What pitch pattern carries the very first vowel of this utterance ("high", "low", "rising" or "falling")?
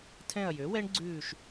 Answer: falling